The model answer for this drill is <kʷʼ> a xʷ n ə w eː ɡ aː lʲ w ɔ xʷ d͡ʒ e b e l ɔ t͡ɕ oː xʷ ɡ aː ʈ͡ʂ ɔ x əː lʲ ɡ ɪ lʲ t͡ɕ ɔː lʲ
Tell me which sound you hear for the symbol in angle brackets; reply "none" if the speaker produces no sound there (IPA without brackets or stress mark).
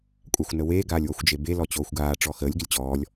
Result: kʷʼ